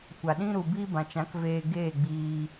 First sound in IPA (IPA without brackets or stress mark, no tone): kʷ